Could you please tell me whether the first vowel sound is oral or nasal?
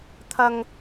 oral